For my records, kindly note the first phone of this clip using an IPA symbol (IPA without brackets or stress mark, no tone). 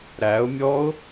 ɾ